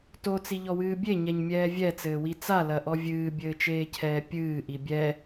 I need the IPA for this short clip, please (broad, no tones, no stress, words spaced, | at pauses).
tot͡siʎɔwɨː bʲeɲɛɲmʲɛː vʲɛt͡sɘːwi t͡salɐʔɔ vʲɨːbʲɘːt͡ʃeːcʰɛː pʲɨːʔi bʲɛ